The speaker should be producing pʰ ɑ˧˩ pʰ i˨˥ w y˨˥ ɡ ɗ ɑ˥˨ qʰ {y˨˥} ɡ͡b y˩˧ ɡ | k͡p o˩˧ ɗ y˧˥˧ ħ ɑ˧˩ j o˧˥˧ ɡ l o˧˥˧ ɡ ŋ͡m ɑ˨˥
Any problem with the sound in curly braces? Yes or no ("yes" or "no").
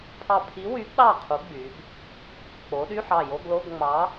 yes